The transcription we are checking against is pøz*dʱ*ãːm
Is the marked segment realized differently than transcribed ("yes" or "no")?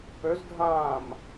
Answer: no